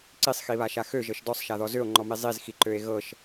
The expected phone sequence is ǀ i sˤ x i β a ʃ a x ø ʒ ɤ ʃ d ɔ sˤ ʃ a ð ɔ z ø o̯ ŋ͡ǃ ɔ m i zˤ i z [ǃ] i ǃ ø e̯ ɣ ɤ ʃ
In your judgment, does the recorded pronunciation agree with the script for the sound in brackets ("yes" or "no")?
no